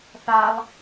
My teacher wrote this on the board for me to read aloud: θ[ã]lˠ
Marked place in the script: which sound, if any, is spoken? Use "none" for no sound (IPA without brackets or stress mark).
a